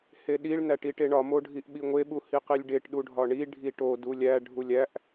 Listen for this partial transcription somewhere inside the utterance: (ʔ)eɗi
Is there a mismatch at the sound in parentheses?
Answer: yes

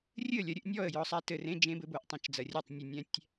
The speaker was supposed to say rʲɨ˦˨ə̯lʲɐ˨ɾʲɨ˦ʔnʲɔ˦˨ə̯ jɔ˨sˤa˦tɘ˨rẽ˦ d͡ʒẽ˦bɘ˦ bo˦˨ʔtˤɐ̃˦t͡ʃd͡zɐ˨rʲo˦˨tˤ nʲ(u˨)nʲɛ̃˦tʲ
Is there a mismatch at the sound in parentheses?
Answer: no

